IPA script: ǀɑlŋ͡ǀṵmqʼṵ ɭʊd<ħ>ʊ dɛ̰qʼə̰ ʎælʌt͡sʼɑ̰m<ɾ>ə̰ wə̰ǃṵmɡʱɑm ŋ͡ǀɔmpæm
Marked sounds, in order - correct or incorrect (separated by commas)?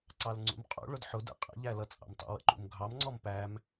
correct, incorrect